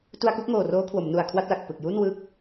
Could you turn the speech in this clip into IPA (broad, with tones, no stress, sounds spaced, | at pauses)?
t u˧ a̯ k u˥˩ k̚ ŋ oː˨˩ r oː˦˥ kʰ w o˩˦ m n u˨˩ a̯ kʰ w a˥˩ t̚ l a˨˩ k̚ p ɯ˨˩ k̚ j u˥˩ n w ɯː˥˩ k̚